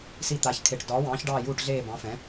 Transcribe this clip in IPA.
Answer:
s i˦˨ t̪ a˨˥ ç kʰ e˨˩˦ ʈ d ɒː˨˥ w ɑ̃ː˨˥ ç ɖ ɑː˦˨ j uː˦˨ ʈ ɮ eː˦˨ b ɑ̃˨˥ f ɛ̃˨˥

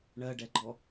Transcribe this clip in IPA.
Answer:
ɳ ɜ ɖ ɛ ɡ͡ǃ ɔ

